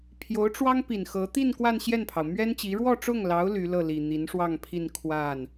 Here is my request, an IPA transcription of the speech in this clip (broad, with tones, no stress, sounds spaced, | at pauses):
pʰ j o˧˥ ʊ̯ ʈ͡ʂ w ɑ˥ ŋ p i˨˩ n x ɤ˧˥ t̪ i˥˧ n k w a˥˧ n ɕ j ɛ˥˩ n pʰ ɑ˩ ʊ̯ m ɥ ɛ˥ n t͡ɕ i˧˥ ɻ w ɔ˥˧ ʈ͡ʂ ʊ˥˩ ŋ l ɑ˧˥ ʊ̯ l y˧˥ l ɤ˥˩ l i˨˩ n̪ i˧˥ n ʂ w ɑ˥˧ ŋ pʰ i˥˧ n kʰ w a˥˩ n